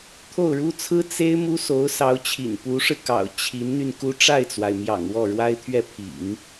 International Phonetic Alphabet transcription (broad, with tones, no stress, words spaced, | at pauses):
t̪ʰo˥˩ʊ̯ɻu˥ t͡sʰɹ̩˥ t͡se˥ɪ̯ mu˥so˧˥ʊ̯sɑ˧˥ʊ̯t͡ɕʰḭ˨˩n pu˧˥ʂɻ̩˧kɑ̰˨˩ʊ̯ t͡ɕʰi˧˥nn̪y˧n ku˥ ʈ͡ʂa˥˩ɪ̯t͡swa˩ɪ̯mjɑ̰˨˩ŋ wɔ˥˩ɻwa˥ɪ̯ t̪ʰɥɛ˥˩ pʰḭ˨˩˦ŋ